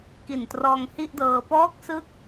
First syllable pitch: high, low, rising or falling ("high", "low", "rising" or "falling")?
low